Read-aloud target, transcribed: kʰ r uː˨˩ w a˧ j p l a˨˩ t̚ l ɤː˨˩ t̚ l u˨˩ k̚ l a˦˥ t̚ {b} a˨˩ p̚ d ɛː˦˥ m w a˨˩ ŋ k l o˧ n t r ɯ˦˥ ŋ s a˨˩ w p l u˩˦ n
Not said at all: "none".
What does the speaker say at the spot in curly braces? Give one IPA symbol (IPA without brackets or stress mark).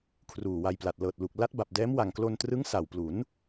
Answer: b